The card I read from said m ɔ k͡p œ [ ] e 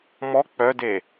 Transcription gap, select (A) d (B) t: A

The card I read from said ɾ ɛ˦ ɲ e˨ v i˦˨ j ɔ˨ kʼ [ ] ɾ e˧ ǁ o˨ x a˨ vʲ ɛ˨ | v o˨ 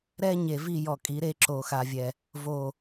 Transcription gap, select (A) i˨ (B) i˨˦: B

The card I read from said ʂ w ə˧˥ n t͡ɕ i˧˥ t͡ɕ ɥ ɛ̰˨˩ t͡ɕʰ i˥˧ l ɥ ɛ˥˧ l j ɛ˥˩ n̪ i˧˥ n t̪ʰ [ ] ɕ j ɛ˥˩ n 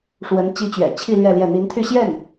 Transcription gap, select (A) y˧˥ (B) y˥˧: B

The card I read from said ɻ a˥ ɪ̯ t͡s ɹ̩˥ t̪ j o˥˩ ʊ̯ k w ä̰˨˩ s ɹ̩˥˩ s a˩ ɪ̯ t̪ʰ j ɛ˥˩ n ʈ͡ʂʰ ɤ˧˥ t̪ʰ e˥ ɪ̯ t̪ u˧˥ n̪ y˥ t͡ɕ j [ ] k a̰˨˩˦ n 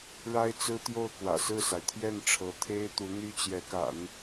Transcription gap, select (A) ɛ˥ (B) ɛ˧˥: B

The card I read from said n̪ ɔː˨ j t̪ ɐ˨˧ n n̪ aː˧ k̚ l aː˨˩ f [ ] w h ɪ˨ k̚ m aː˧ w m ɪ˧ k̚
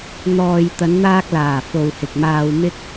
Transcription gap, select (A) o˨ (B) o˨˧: A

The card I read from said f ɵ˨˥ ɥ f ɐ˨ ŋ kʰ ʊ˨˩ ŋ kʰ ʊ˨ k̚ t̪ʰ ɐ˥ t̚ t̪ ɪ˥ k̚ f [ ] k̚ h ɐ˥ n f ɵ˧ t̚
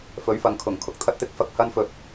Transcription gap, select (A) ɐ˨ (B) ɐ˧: B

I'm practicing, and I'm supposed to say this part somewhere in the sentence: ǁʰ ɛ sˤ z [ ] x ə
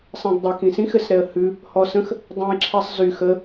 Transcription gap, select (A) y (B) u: A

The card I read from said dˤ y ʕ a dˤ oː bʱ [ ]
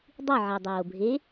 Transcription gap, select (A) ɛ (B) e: B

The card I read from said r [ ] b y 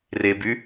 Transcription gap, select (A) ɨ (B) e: B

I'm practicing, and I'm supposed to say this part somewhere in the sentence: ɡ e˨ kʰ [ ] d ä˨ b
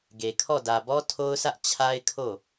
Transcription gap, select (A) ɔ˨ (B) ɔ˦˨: B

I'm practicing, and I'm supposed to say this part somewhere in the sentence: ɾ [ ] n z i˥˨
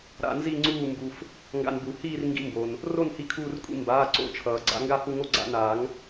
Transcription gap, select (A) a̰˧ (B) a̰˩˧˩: A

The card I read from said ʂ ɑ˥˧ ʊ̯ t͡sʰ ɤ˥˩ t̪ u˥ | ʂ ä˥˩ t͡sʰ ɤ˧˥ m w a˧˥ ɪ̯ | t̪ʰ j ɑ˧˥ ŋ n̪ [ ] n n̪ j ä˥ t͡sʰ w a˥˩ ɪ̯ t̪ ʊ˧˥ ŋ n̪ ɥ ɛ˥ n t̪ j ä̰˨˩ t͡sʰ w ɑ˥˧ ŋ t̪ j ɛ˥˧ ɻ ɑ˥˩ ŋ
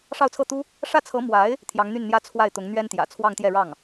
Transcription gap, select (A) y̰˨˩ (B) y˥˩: B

